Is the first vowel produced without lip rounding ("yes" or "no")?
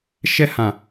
yes